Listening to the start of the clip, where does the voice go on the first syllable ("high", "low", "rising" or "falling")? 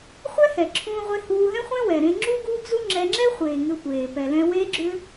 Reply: high